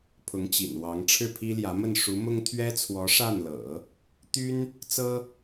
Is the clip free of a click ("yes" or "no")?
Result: yes